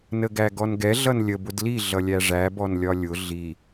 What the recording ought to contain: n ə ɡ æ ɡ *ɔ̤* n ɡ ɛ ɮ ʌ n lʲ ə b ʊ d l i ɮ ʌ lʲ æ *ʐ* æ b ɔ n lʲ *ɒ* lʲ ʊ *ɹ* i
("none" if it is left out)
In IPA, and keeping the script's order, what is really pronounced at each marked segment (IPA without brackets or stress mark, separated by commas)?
ɔ, ʐ, ɒ, ɮ